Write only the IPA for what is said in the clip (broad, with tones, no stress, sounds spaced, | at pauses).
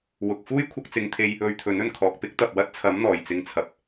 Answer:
w ʊ˨ k̚ f uː˥ j kʷʰ ɐ˧ k̚ t͡s ɪ˨˧ ŋ t̪ʰ e˧ j | ɵ˧ ɥ t̪ʰ ɵ˨˥ n ɵ˨˩ n kʰ ɔː˨ k̚ p ɪ˥ k̚ t̪ ɐ˨ p̚ w ɐ˥ t̚ t͡sʰ ɐ˨˥ m n̪ ɔː˨˩ j t͡s ɪ˧ ŋ t͡sʰ ɐ˨ p̚